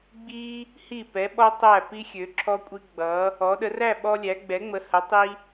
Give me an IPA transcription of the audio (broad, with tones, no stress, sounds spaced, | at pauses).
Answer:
ɡ͡b i˧ | h i˧˩ p ɛ˩˧ ɓ ɔ˧ tˤ æ˧˩ p i˧ xʲ ø˩˧ ǁʰ ɔ˧ kʷʼ i˧ ɡ͡b ʌ˩˧ | ɔ˩˧ ɗ ə˩˧ r æ˥˧ ɓ ɔ˧ lʲ æ˩˧ ɡ͡b ɛ˩˧ ŋ͡m ə˩˧ h ə˩˧ tˤ i˧